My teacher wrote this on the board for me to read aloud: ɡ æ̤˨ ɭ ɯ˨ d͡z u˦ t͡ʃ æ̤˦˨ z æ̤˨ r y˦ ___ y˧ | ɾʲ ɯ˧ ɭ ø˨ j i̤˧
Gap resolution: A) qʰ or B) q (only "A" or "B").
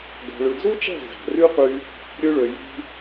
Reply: B